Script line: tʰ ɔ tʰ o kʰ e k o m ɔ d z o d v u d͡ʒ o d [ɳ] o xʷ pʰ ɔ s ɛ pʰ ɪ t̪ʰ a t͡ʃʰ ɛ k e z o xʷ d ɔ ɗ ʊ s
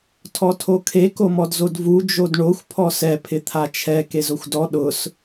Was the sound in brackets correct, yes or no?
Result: yes